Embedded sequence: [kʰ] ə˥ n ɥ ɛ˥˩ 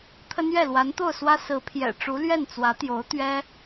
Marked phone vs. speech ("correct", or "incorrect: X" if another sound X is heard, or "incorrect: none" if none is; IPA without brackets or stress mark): incorrect: t̪ʰ